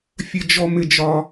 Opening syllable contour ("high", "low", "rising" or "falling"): high